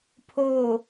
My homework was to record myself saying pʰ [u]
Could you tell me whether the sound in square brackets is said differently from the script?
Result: yes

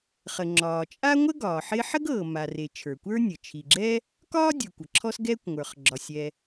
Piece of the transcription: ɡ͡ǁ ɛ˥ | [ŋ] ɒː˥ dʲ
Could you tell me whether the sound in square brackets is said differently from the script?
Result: yes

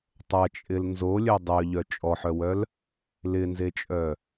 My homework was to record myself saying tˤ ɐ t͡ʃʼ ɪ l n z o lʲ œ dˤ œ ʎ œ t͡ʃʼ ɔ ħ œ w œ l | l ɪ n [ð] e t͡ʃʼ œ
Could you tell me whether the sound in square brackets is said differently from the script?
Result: yes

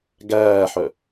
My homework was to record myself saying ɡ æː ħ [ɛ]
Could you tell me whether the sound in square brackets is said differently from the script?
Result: yes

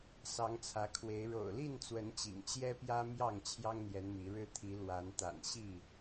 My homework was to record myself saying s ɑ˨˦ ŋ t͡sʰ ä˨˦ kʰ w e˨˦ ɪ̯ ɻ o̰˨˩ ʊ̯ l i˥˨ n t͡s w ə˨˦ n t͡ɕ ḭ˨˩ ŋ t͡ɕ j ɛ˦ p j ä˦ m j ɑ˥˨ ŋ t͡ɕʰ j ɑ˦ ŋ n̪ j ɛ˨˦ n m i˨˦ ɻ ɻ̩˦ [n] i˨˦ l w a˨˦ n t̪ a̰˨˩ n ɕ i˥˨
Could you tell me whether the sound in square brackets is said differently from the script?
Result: yes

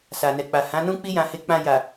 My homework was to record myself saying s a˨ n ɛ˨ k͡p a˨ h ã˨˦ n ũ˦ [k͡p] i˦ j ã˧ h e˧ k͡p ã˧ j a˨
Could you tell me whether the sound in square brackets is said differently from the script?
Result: no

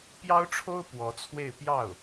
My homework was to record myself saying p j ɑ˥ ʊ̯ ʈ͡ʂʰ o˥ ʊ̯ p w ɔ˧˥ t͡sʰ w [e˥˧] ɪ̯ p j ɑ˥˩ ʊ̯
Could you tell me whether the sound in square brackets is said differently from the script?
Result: no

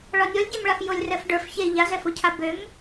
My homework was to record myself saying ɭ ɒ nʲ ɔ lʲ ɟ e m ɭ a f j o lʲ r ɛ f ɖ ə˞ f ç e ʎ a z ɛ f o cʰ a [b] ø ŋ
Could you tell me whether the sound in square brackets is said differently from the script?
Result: no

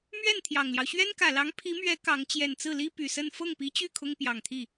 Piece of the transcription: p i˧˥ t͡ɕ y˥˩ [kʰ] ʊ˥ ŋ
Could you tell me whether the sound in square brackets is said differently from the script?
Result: no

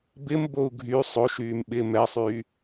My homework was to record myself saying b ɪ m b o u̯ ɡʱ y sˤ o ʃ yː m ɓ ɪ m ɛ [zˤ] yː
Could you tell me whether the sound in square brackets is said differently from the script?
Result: yes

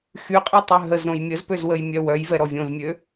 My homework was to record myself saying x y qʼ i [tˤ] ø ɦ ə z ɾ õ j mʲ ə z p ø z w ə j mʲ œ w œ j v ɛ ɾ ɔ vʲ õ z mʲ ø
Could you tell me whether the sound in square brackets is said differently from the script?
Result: no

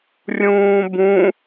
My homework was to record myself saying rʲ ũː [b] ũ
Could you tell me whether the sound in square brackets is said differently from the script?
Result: no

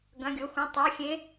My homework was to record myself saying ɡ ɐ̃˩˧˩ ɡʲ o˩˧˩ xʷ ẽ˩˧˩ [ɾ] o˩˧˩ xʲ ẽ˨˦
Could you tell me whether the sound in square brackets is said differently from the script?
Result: yes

